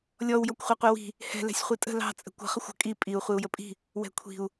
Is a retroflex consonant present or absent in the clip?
absent